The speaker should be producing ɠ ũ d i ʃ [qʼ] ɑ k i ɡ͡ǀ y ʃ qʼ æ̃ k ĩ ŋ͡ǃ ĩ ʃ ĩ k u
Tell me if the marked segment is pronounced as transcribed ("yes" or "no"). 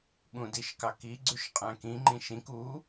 no